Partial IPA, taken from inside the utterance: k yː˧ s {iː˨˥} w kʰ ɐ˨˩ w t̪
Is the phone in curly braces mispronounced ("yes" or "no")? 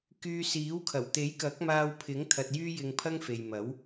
no